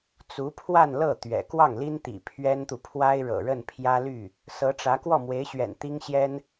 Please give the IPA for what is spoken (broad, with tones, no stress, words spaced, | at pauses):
t͡su˧˥pʰwa˥˧nlɤ˥˩ t̪ɥɛ̰˨˩ kwɑ˥˩ŋli˥nt̪ḭ˨˩ pʰɥɛ˥nt̪u˨pʰwa˥ɪ̯ ɻɤ̰˨˩ɻə˥˩npʰjä˥ly˥˩ | sɤ˧˥ʈ͡ʂä˧˥ kwɔ˥˩mwe˧˥ɪ̯ɕɥɛ̰˨˩n t̪i˥ŋɕjɛ˥n